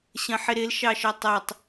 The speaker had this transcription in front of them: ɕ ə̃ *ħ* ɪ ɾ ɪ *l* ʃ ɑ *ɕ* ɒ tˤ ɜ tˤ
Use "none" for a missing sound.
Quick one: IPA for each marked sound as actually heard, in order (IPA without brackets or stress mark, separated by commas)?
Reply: ħ, l, ʃ